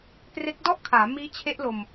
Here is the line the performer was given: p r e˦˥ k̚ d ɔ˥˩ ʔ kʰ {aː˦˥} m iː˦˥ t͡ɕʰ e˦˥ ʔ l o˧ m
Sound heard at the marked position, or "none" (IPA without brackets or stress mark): aː˩˦